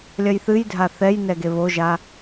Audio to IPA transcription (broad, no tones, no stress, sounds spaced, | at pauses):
lʲ ɐ j θ ɨ j dʱ a θ ɛ j n ɛ ɡ e β o ʒ a